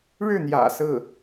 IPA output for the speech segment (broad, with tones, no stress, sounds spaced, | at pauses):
ɻ ɻ̩˥˩ n̪ j ä̰˨˩ s ɹ̩˥˩